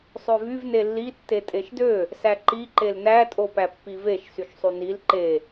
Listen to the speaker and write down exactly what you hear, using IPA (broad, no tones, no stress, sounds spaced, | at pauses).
sˤ ø v y v n e lː i tː e tʼ e ʃ d ø | s æ ǃ i ǃ e l n æ tʼ o p æ pː i v e ʃ s y ʃ sˤ y n i l ǃ e